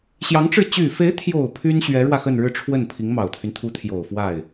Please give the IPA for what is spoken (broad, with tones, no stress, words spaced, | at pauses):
ɕjɑ˧˥ŋʈ͡ʂɻ̩˥˩ t͡ɕy˨˩fe˧˥ɪ̯t̪ʰjo˨˩ʊ̯ pʰy˥nɕɥɛ˧˥ɻwä˧ xə˥˧nɻɻ̩˥˧ʈ͡ʂʰwə˥˩n pʰi˧˥ŋmɑ˨˩ʊ̯t̪ʰy˦n t̪ʰu˧˥t̪ʰjo˨˩ʊ̯ fwa˥˩ɪ̯